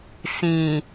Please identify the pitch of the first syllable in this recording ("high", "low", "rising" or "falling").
low